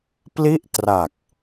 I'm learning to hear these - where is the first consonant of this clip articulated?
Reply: lips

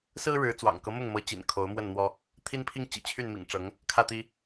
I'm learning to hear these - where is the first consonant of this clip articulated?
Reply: tongue tip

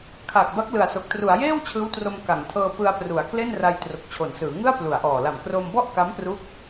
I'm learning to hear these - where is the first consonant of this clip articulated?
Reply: velum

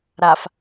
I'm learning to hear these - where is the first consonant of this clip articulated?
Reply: tongue tip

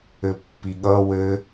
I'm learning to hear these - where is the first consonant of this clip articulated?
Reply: lips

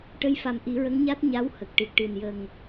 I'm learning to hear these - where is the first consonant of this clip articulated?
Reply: retroflex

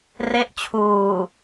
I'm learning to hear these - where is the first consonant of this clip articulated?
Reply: tongue tip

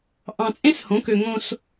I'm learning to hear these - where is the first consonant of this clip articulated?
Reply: throat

